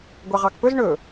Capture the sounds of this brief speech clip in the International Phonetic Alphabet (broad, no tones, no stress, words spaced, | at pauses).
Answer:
ɡʷɑʁɑkpɵz ɳɵ